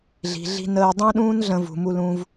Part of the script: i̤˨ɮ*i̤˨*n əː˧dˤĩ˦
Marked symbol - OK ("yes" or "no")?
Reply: no